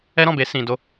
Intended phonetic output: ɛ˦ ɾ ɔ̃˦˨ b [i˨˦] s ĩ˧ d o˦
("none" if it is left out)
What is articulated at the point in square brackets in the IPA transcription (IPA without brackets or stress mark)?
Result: e˨˦